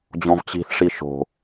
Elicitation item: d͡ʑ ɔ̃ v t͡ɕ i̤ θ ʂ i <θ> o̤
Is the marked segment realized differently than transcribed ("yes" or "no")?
yes